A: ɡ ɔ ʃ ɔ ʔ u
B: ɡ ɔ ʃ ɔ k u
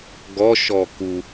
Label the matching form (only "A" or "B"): B